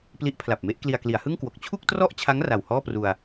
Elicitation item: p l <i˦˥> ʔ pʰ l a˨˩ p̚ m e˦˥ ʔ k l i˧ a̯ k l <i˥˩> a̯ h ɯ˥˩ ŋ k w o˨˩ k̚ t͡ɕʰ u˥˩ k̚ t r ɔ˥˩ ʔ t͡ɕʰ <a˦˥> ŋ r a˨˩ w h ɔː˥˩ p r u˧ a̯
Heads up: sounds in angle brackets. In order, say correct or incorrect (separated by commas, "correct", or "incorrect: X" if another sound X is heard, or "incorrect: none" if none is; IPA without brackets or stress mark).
correct, incorrect: i˩˦, correct